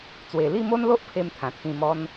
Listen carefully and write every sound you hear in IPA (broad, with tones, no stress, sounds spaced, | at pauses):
t͡s w e˨˩ l i˥˧ m o˦ n l o˦ ʔ pʰ e˦ m t̪ʰ ã˨˩ t̪ʰ ĩ˧ m ɔ˦ n